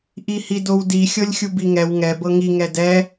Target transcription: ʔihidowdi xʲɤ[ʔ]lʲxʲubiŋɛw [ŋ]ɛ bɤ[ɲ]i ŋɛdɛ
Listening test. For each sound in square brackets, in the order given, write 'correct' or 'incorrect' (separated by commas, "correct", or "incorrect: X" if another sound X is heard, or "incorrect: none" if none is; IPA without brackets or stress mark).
incorrect: none, correct, incorrect: ŋ